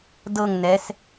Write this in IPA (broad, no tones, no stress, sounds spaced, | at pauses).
d ɤ ŋ n ɛ s